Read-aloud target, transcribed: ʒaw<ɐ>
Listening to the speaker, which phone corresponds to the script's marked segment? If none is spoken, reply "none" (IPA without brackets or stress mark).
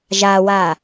a